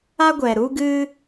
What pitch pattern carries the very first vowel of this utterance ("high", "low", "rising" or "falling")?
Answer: high